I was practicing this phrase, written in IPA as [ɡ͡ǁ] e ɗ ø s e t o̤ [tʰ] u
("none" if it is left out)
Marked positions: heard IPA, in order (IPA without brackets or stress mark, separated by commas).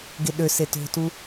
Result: ɡ, t